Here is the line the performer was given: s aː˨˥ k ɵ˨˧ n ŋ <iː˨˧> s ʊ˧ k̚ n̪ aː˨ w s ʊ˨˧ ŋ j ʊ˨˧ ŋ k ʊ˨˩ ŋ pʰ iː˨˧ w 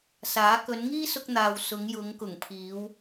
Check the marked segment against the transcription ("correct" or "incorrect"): incorrect